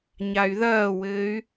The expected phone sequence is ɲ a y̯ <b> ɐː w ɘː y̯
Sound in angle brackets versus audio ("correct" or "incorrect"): incorrect